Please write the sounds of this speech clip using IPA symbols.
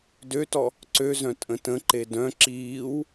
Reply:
d ø t ɔ | ǀ ø z œ̃ tʼ ə̃ t ə̃ ǃ e d œ̃ ǁ iː w

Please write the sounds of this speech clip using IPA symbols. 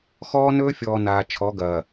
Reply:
x ɔː˦ n ɵː˦ fʲ ɔː˨ n aː˨ t͡ʃʰ ɔ˨˦ ɡ ɐː˨

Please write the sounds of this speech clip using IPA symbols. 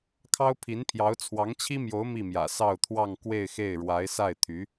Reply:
kʰ ɑ˥ ʊ̯ pʰ i˧˥ n pʰ j ɑ˧˥ ʊ̯ t͡sʰ w ɑ˧˥ ŋ t͡ɕʰ i˥ m j o˧˥ ʊ̯ m i˥˩ m j ä̰˨˩ s ɑ˥˧ ʊ̯ t̪ʰ w ɑ˥˧ ŋ k w e˥˧ ɪ̯ x e˥˩ ɪ̯ ɻ w a˧˥ ɪ̯ s a˥˩ ɪ̯ t̪ʰ y˧˥

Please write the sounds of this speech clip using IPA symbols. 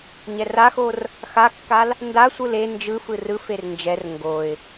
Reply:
ɲ ɛ r a x o r | x a kː a l | n d a sʷ ɯ l e n d͡ʒ ɯ f ɯ r ɯ f e r n d͡ʒ ɛ r ŋ ɡ o ɪ̯

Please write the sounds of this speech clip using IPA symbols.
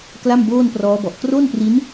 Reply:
k l a˥˩ m b oː˥˩ n p r ɔː˦˥ b ɔ˨˩ ʔ k r o˥˩ n p r i˦˥ n

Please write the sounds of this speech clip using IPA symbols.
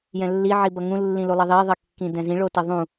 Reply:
j ɛ̃ lː i ʕ i b ʌ ŋ ũ lː ĩ l u lˠ ʌ ðˤ e ðˤ ʌ kː ĩ d ɛ̃ z ĩ ɭ o t ʌ ðˤ ũ

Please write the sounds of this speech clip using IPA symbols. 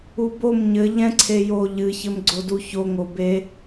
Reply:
u b o m ɲ ɘ ʎ ɛ̃ ǀʰ e j o ʎ ɨ ç ɘ m ɡ͡ǀ o d u ç o ŋ o b e

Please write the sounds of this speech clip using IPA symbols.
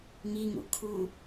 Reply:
ŋ i ŋ ṵ kʰ u

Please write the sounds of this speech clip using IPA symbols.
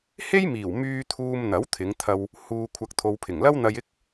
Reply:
h e˥ j m iː˨˩ w m yː˧ t̪ʰ uː˧ m n̪ ɐ˨˥ w t̪ʰ ɪ˨˧ ŋ t̪ʰ ɐ˧ w | h uː˧ kʷʰ ɐ˧ k̚ t̪ʰ o˨ w pʰ ɪ˨˩ ŋ l ɐ˥ w n̪ ɐ˧ j ɪ˥ k̚

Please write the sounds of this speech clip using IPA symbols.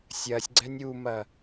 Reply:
sʲ ɐ sʲ ɡ͡ǀ ɛ nʲ u m ɐ

